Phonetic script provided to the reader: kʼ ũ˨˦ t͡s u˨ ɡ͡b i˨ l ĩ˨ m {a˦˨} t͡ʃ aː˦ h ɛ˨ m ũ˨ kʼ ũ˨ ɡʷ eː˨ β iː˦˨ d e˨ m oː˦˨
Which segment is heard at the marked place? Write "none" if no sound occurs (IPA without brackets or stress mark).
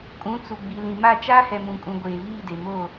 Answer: a˦˨